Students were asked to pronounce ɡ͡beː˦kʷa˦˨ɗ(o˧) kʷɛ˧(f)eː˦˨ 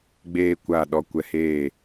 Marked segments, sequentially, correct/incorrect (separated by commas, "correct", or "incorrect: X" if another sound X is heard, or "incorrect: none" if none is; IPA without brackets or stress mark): incorrect: ɔ˧, incorrect: h